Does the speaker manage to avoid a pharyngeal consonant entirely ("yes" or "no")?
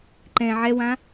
no